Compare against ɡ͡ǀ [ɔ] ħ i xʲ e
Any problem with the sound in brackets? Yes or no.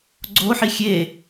yes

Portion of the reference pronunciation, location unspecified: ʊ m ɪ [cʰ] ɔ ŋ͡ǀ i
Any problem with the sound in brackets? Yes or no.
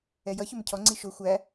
no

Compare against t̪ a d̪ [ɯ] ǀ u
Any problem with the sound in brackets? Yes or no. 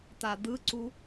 no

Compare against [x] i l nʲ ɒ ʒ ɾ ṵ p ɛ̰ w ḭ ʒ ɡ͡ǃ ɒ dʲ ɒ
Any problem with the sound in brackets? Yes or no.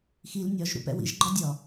no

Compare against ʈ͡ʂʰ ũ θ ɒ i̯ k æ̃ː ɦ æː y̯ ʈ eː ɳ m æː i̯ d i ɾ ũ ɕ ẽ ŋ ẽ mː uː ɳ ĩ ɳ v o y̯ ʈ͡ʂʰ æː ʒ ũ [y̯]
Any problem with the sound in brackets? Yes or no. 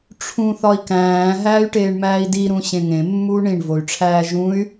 no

